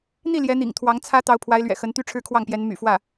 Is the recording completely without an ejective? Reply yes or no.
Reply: yes